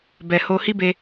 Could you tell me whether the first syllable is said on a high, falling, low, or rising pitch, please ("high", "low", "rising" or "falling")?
low